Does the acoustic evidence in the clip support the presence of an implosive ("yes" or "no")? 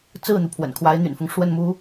no